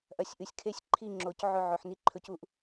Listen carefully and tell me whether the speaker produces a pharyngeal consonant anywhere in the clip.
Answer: yes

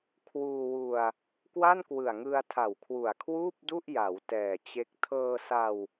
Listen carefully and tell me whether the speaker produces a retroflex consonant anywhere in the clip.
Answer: no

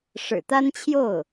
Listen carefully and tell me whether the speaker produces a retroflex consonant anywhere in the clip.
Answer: yes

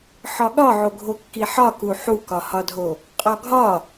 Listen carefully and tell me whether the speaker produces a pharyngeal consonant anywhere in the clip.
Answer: yes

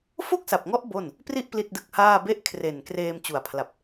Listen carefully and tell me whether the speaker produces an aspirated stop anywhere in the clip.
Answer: yes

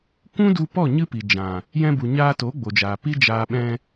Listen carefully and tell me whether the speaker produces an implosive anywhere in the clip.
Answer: yes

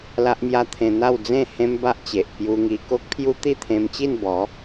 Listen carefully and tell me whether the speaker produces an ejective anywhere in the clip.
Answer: no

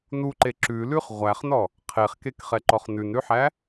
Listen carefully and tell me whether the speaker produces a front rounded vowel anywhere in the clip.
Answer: no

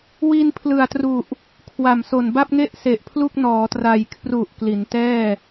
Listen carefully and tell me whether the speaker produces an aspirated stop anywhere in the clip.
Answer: yes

